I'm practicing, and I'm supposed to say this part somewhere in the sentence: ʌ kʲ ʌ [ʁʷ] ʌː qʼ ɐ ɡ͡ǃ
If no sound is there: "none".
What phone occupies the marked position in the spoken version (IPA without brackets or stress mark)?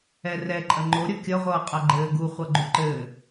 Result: ʁʷ